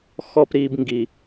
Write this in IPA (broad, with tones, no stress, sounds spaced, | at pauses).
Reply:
x ɔ˨ p ɾ i˨ b ŋ ɡ i˨